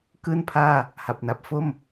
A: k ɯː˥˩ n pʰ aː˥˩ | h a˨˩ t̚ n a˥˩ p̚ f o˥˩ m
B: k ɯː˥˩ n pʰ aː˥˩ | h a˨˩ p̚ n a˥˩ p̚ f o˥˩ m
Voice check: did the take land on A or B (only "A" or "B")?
B